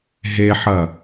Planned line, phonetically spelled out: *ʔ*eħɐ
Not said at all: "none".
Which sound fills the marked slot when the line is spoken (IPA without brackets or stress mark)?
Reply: ɦ